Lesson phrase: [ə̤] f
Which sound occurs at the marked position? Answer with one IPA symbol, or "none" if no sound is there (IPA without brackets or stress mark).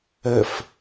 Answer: ə